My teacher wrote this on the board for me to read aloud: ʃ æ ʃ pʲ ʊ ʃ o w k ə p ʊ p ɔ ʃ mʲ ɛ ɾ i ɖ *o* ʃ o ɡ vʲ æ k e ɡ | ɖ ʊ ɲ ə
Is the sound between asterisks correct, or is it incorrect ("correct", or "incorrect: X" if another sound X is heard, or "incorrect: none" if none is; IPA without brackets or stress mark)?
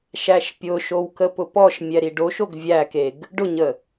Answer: correct